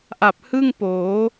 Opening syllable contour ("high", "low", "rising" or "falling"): low